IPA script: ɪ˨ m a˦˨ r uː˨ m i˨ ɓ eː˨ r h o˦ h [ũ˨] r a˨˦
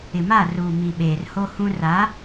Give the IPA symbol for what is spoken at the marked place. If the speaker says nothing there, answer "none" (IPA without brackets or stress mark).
ũ˦